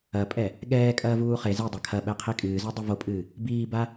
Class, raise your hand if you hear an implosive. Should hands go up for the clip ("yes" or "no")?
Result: yes